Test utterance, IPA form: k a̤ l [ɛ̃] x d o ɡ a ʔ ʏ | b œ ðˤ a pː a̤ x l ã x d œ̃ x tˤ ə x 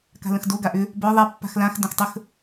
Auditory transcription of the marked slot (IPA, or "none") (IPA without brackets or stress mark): ə̃